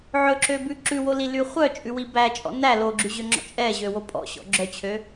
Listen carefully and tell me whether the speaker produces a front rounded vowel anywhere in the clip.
yes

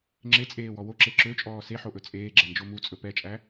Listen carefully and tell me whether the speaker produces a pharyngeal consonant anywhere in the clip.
yes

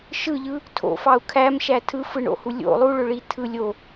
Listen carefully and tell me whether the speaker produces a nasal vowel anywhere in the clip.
no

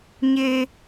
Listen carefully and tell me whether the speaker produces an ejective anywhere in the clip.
no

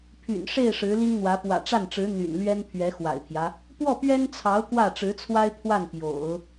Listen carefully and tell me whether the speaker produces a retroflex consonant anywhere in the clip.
yes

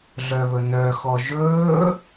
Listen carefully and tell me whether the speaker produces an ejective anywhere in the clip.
no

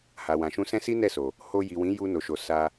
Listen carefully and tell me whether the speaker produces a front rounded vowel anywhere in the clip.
no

